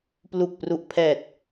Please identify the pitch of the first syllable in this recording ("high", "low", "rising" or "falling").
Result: low